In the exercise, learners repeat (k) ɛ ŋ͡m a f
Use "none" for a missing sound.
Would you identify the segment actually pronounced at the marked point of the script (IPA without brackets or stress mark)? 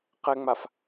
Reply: q